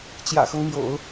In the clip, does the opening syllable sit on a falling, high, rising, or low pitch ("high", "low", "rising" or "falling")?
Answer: low